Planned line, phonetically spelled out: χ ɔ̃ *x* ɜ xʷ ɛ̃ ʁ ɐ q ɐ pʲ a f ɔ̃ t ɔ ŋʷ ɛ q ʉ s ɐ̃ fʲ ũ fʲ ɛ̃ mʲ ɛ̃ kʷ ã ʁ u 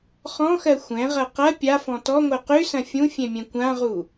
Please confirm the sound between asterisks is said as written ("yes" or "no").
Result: yes